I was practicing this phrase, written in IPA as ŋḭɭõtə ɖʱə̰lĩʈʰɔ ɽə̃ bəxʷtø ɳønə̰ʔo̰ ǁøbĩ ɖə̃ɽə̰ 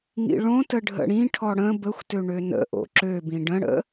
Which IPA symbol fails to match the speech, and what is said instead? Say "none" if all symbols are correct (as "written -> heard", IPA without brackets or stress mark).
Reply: l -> ɽ